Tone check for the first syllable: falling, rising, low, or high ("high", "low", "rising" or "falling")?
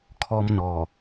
high